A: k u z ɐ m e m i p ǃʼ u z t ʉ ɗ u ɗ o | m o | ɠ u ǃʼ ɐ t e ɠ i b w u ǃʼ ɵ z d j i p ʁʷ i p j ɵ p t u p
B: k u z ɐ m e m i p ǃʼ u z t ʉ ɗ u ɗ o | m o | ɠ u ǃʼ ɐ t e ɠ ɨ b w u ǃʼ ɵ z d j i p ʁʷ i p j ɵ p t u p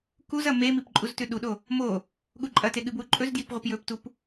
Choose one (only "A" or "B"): B